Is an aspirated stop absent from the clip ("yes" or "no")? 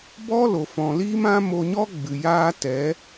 yes